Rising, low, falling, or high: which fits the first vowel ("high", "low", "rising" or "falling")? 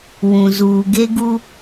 low